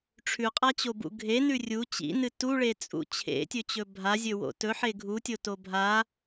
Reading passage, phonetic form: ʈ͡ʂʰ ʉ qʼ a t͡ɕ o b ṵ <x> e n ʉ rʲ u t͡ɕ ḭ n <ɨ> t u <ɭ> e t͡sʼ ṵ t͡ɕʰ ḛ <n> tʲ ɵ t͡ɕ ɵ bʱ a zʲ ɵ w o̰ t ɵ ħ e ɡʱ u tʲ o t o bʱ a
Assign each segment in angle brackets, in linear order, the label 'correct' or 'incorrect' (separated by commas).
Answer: incorrect, correct, correct, incorrect